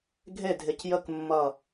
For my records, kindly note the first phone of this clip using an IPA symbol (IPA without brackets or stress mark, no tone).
ɡʱ